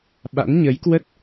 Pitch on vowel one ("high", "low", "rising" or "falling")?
rising